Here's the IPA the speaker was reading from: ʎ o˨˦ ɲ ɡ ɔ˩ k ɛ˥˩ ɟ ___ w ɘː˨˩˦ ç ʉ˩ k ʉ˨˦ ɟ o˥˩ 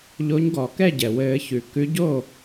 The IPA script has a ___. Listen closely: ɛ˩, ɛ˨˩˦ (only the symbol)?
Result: ɛ˩